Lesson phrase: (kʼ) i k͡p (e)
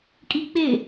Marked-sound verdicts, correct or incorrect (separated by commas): correct, correct